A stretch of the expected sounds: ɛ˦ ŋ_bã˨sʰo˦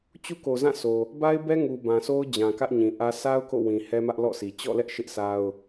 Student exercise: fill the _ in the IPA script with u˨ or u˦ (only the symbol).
u˨